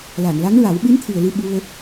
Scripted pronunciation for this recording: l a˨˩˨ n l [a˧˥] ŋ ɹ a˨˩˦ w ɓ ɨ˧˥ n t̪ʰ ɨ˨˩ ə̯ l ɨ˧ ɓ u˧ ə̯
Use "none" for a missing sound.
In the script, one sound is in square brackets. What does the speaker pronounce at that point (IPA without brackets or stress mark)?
a˧˥